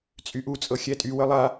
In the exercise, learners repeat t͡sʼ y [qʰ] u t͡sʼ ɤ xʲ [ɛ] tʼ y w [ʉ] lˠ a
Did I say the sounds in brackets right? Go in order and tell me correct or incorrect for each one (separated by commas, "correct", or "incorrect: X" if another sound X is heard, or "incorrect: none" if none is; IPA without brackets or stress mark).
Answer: incorrect: ʔ, correct, incorrect: ə